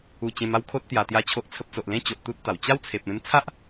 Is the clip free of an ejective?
yes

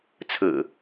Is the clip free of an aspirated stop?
no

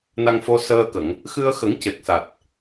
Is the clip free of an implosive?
yes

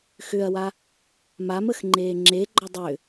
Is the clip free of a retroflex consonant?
yes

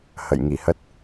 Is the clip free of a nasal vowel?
yes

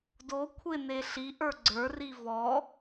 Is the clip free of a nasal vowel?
yes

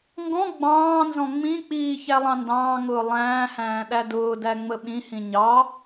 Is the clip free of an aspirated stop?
yes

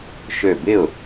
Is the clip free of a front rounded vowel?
no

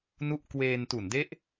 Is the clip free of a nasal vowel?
yes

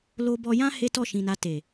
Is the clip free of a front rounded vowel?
yes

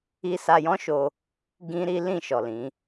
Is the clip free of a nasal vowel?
no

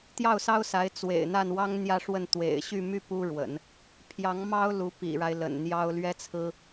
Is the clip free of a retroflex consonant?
no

